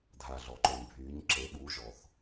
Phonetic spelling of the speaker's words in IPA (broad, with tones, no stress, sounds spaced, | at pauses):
dʱ a˩ ɮ ɔ˩ ǃ o˩ ɲ bʱ yː˩˧ ɲ ǁ e˩˧ ɓ uː˩˧ ʒ ɔ˩ θ